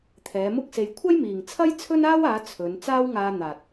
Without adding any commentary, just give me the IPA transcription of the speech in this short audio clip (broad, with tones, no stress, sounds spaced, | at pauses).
t̪ʰ ɛː˨˧ m ʊ˥ k̚ s e˧ j kʷʰ ɐ˥ j m iː˨ ŋ t͡sʰ ɐ˥ j t͡sʰ ɵ˥ n aː˥ w aː˨˧ t͡sʰ ɵ˨˧ n t͡s aː˥ w ŋ aː˧ n̪ aː˨ t̚